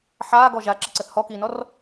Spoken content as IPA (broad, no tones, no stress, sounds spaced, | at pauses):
ħ aː ɡ ɔ ʒ a ǁ ə ǀ ə θ h ɔ k iː n ɔ r